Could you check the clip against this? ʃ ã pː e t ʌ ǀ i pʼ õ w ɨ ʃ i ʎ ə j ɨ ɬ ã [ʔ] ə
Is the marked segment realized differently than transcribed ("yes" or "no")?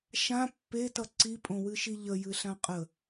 yes